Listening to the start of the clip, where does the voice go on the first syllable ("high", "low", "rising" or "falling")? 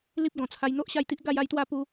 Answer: high